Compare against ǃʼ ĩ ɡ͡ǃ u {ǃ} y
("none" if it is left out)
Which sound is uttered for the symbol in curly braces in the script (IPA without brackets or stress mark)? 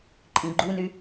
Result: n